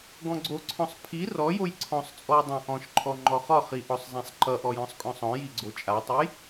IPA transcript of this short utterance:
ɡ ɔ̃ ɡ͡ǀ o ǀʰ ɔ̃ sˤ pʰ i r ɔ j o j ǀʰ ɔ̃ sˤ t͡sʼ ɔ j dˤ ã ʔ ɔ̃ ʃ ǃʰ ɔ ŋ͡ǃ ɔ χ ɒ χ i ʔ ɔ sˤ zˤ ã sˤ ǃ ʌ ʔ ɔ j ɔ̃ sˤ kʼ ɔ̃ sˤ ɔ̃ j i ɡ͡ǀ o t͡ʃʼ a tˤ ʌ j

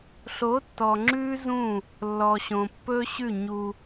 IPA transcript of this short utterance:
ɬ o˨˦ tː ɔ˨ ŋ͡ǁ ʉ˦ z ũ˦˨ | lː ɔ˨ ɕ õ˨ pː ɵ˦ ɕ ʉ˦˨ ɲ u˦

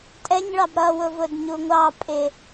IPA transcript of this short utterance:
tʼ ɛ ɲ ɭ ɑ b ɾ ʌ w ʊ v ʊ d ɲ u ŋʷ ɑ pʼ ɪ

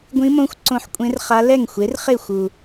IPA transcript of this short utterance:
ɡʷ ĩ˧˥ m õ˧˥ xʷ ǀ õ˧ ħ kʷʼ ẽ˧˥ r χ a˧˥ l ɛ˥˩ ŋ xʷ e˩˥ r χ e˥˩ xʷ u˨˩

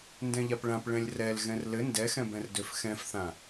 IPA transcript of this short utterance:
n d ɛ̃ ʎ a p ɭ ã p ɭ ɛ̃ lʲ r ɛ l ɣ ɛ̃ r l ɘ n d ɛ x ɛ̃ b ɛ̃ r d ø f x ɛ̃ f θ ã

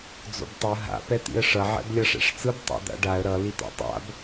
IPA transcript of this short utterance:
d͡z o̰ b tˤ ɯ ɦ a̰ p ɛ t̪ ḭ ə̯ ʂ ʌ ʕ ɛ̰ b lʲ ʌ ʂ ɛ̰ ʂ t͡s ɯ b tˤ ɛ̰ d̪ a̰ ɖ a ə̯ ɾ ʌ l i t̪ a̰ tˤ a̰ b

